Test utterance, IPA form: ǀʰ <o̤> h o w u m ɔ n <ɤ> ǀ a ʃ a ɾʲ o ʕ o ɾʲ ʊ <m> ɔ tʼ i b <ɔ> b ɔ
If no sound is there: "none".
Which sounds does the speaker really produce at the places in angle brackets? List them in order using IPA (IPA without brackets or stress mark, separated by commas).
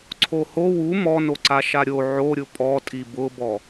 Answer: o, o, pʼ, ʊ